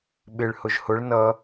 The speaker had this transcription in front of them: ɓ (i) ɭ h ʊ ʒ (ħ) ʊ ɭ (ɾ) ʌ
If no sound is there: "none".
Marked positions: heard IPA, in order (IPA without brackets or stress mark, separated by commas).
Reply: ɪ, h, n